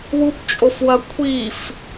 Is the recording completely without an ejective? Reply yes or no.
no